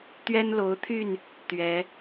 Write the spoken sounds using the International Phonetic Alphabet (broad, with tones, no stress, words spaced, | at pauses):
t̪ɥɛ˦nlo˨˦ʊ̯t̪ʰy˥˨n | t̪ɥɛ˨˦